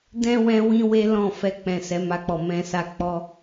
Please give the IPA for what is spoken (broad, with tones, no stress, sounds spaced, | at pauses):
d ɛ̃˦ w ɛ̃˦ w ĩ˦ w e˦ l ɔ̃˦˨ f ɛ˧ k͡p ɛ̃˨ s ɛ˨˦ m a˧ k͡p ɔ˨ m ɛ̃˧ s a˧ k͡p ɔ˦